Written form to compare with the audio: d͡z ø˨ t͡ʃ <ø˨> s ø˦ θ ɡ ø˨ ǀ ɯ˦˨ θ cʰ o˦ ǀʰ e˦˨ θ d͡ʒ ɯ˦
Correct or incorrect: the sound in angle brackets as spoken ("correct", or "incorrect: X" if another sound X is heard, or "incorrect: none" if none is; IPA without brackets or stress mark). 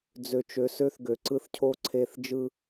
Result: correct